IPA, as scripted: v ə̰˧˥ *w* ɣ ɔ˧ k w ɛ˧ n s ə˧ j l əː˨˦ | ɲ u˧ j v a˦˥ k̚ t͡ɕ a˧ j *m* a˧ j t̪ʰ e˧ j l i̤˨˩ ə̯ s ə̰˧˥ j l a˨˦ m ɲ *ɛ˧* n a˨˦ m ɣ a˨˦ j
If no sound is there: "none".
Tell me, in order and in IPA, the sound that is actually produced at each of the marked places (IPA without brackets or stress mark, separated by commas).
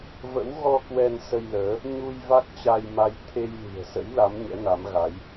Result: w, m, ɛ̰˧˥